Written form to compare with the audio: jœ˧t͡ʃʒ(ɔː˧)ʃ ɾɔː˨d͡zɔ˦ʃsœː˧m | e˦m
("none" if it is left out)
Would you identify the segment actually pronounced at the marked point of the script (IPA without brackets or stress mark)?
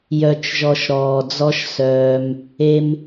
ɔ˧